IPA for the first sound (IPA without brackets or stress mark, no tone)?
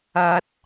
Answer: ɐ